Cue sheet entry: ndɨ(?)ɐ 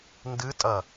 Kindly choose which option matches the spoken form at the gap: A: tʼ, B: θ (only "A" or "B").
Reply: A